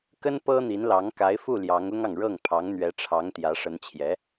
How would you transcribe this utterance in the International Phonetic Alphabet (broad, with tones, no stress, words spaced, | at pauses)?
kə˥n pɤ˥n̪i˧˥nlɑ˧˥ŋ ka˧˥ɪ̯fu˥˩ ljɑ˧˥ŋʊ˥ŋɑ˨ŋ ɻɤ˥˩ŋpʰɑ˧˥ŋn̪ɥɛ˧˥ʈ͡ʂʰɑ˧˥ŋ t̪jä˧˥ʂə˧˥nt͡ɕʰjɛ˧˥